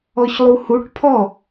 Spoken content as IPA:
ɔ ç lˠ u h u ʈ pʰ ɔ

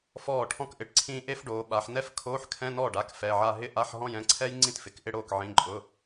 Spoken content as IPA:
f ɔː˥˩ ʈʰ ɔ̃˥ k ʔ ɪ˩˧ ʈ ǀʰ ĩː˥ ʔ e˥ f ɖ oː˩˧ ɓ a˩˧ ħ n ɛ˥ f kʰ oː˧˥˧ ħ kʰ ɛ̃˧˥˧ n ɔː˥˩ ɖ a˩˧˩ k f ɛ˩˧˩ ʕ a˥˧ ɦ ɪ˥˧ ʔ a˧˥˧ ħ ɦ ɔ̃˥˧ j ɛ̃˩˧˩ ǀʰ ɛ˥ j ŋ͡ǀ ĩ˥˩ t f ɪ˩˧ k ʔ ɪ˥˧ ɽ oː˥˩ k ʕ ĩ˩˧˩ ǃʼ ʊ˩˧˩

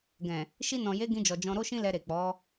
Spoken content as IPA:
ɡ ɛ̃˨ | ʃ i˧ n ɔ̃˨ j e˨˦ ɡ ĩ˧ d͡ʒ ɔ˨ d͡ʒ ɔ̃˧ ɾ o˦ ʃ ĩ˦ l ɛ˧ ɾ e˨ k͡p ɔ˨˦

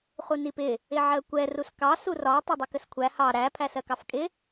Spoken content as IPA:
χ u n i p ɪ | ɪ ʕ ɜ kʷ ɛ r u s k ɑ s u r ɒ tˤ ɪ dˤ ʊ k ə s kʷʰ æ h ɑ ɾ æ pʰ æ s ɜ k ɑ f kʼ ɪ

